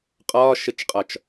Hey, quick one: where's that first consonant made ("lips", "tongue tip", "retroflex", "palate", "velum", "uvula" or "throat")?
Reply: uvula